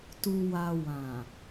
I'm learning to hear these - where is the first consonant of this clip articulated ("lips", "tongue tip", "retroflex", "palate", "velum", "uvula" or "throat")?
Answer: tongue tip